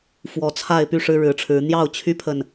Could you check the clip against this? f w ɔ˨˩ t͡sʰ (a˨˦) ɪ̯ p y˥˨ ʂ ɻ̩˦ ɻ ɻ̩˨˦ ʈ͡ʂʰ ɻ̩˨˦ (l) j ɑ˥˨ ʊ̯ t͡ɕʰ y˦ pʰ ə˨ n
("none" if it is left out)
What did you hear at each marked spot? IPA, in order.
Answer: a˥˨, n̪

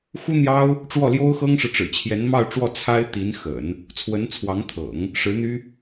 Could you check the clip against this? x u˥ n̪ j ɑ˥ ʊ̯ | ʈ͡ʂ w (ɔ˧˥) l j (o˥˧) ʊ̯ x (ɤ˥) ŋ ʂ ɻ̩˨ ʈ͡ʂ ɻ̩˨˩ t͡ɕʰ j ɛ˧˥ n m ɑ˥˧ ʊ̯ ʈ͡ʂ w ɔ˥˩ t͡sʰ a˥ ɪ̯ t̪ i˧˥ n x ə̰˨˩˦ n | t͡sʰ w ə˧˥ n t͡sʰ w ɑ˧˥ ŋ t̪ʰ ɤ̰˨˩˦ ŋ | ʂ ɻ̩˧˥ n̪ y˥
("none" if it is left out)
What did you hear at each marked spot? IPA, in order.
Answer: ɔ˥˩, o˥, ɤ˥

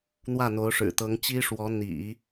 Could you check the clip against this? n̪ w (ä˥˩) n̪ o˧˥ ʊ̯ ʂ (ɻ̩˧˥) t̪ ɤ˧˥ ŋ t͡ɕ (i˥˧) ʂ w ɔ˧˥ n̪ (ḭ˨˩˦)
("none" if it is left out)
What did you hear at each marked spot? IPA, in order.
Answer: ä˥˩, ɻ̩˨˩, i˥, ḭ˨˩˦

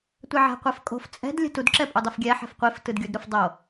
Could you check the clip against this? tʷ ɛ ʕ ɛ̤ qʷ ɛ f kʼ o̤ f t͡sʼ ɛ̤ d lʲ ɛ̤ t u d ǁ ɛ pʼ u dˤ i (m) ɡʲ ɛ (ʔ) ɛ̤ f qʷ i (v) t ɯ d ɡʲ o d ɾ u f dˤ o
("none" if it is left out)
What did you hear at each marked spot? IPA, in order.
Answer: f, ħ, f

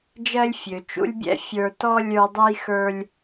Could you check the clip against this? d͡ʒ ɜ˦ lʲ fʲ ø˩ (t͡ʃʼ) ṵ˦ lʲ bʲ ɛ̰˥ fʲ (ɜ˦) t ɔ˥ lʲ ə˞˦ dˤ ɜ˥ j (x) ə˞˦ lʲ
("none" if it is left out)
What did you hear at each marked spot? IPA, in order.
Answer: t͡ʃ, ə˞˦, x

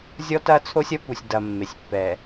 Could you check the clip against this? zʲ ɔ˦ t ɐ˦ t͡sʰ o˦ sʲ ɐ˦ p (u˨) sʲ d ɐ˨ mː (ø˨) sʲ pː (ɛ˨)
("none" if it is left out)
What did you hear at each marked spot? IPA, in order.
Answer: u˨, e˨, ɛ˨

